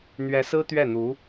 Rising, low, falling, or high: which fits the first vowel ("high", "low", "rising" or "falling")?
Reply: rising